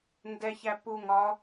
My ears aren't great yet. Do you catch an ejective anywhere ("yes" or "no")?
no